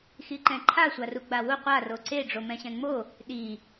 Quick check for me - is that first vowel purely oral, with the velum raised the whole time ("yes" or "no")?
yes